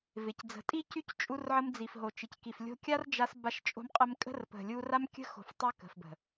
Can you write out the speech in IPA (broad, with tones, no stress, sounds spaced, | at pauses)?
v ɪ˨ c d͡z ə̤˨ tʼ i˦ c y˦ c t͡ʃʼ u˧ r ʕ ə˧ m d͡z i˨ f ɦ o˨ t͡ʃ ɪ˨ c k i˨ f lʲ o̤˧ kʲ a˦ r d͡ʒ a˧ s b a˧ ʃ t͡ʃʼ o̤˧ m qʼ ə˧ m kʼ ə̤˦ r p ə̤˨ lʲ u˧ r a˦ m kʲ ə̤˦ x o̤˨ f tˤ a˦ k ə̤˨ f b ə̤˨